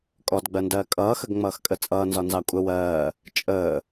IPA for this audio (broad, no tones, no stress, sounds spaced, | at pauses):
kʼ ɔ d ɡ͡b ɜ n d ɜː kʼ ʌː x ə ɡ ŋ͡m ʌː x kʼ ə t͡sʼ ʌː n z ɒ n z ɑ kʷʼ ə w ɜː | t͡ʃʼ əː